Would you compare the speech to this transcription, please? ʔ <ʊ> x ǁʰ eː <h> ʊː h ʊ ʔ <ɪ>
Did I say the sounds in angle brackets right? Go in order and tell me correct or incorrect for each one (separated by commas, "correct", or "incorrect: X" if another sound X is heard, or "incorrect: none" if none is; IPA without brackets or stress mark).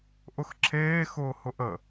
correct, incorrect: x, incorrect: ə